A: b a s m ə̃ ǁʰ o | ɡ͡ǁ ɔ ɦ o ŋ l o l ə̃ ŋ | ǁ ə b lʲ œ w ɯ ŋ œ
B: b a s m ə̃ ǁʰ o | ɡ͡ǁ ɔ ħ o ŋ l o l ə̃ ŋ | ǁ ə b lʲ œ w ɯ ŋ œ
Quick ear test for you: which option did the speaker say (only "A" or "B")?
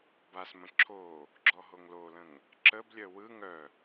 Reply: A